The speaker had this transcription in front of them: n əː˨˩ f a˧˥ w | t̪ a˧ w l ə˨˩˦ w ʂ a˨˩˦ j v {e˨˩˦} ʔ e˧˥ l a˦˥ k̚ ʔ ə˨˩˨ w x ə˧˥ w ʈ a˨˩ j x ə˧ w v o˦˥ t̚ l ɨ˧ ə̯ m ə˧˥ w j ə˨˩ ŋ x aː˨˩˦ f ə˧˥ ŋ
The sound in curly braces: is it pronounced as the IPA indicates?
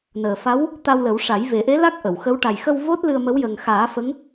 yes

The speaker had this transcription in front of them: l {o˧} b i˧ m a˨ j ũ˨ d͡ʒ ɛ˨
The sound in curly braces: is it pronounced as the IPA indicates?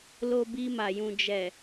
yes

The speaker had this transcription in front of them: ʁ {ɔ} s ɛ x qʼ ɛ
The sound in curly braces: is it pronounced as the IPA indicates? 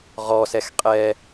yes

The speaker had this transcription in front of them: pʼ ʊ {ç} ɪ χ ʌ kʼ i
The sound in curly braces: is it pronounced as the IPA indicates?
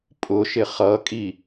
no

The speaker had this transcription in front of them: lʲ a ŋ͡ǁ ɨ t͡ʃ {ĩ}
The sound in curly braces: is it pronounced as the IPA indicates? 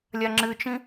yes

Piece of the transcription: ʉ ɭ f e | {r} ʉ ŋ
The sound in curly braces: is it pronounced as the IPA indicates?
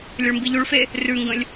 yes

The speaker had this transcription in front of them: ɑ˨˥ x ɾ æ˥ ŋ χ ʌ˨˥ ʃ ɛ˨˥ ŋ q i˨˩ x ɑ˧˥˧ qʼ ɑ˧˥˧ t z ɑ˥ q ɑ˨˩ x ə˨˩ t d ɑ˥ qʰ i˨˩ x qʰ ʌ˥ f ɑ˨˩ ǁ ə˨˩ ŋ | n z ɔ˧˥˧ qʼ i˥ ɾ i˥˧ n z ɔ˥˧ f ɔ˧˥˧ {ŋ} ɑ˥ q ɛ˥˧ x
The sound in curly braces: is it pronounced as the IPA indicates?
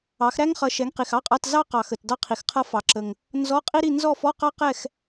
no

